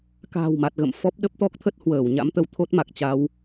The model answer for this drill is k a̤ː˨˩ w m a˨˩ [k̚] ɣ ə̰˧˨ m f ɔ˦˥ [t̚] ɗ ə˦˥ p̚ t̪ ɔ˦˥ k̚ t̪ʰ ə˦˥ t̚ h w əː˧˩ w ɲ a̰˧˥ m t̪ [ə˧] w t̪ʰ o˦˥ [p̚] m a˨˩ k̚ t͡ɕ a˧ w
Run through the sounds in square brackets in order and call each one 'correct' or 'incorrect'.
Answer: incorrect: t̚, incorrect: p̚, correct, incorrect: t̚

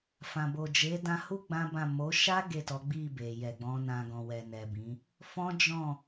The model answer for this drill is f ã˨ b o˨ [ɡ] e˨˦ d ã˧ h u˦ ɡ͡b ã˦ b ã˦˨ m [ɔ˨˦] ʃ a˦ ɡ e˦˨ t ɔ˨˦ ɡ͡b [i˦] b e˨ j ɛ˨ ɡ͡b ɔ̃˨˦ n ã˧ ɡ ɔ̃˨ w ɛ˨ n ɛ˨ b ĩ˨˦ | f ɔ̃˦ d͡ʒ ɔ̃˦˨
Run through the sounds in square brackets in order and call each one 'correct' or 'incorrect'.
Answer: incorrect: d͡ʒ, incorrect: o˨˦, incorrect: i˦˨

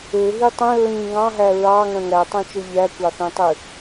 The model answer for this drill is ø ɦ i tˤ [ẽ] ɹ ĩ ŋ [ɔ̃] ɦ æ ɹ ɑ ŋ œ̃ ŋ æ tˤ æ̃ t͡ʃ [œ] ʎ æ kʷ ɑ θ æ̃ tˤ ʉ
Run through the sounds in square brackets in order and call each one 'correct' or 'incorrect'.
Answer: incorrect: ĩ, incorrect: ɑ̃, correct

